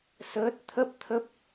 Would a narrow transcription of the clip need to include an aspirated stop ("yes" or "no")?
yes